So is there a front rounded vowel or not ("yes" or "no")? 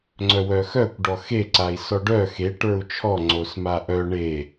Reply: yes